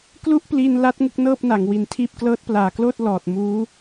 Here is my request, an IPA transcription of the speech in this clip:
k l u˥˩ ʔ p l i˧ n l a˦˥ t̚ ŋ u˥˩ k̚ n ɤː˥˩ p̚ n a˩˦ ŋ w i˨˩ n tʰ iː˥˩ p̚ k l ɤː˦˥ t̚ p l aː˨˩ k l oː˥˩ t̚ l ɔː˨˩ t̚ m uː˦˥

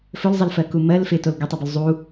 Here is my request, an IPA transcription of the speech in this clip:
f ɵ l zˤ ʌ l f ɜ k u m ɜ l f ɪ t o l ɡ ɵ tˤ ɛ b ɵ l zˤ u

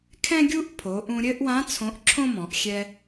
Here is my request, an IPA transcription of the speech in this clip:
kʰ ɛ̃˥ ɡʲ u˥ ʔ pʰ o˩˧ ʔ ũ˧ ɾʲ ɘ˥ ʔ w ã˧˥ t͡sʰ õ˧˥ ʔ ǁʰ õ˥ m ɔ̃˩˧ ʔ xʲ ɛ˧

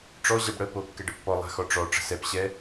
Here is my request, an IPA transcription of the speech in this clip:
ʈ͡ʂ ɔ ʑ ɛ b ɽ ə p o kː ɛ ɖ ə pː ɔ lˠ a̤ x ɔ ʈ͡ʂ ɔ ʈ͡ʂ ə̤ s ɛ p ɕ ɛ

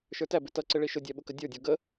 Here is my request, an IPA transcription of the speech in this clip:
ʃ ə˞ t æ b ɪ t ʌ ǀ ɪ ɭ i ʃ ʊ dʲ æ ɓ ʊ k ə dʲ ə˞ dʲ ɔ ɡ ə

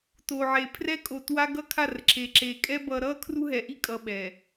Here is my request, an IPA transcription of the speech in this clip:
t o˨ ʕ e˨ pʰ r ɛ˦ kʼ o˨ t w a˦ ɡ ʌ˦ kʰ a˦˨ r ǁ e˨ ǁ e˨ kʼ ɛ˦ b ʌ˨ ɾ ʌ˦˨ kʰ r u˦ ɦ ɛ˨ ʔ i˦ kʼ ʌ˨ ɓ ɛ˨

